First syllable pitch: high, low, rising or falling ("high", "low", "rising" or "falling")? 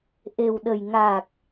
low